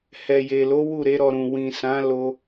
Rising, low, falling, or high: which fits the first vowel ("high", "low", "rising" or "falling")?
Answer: low